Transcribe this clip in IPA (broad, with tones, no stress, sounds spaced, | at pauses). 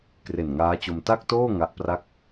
k r e˨˩ n ŋ aː˦˥ t͡ɕ o˧ m t a˥˩ k̚ t oː˥˩ ŋ a˦˥ ʔ p r a˥˩ k̚